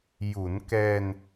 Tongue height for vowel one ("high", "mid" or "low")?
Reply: high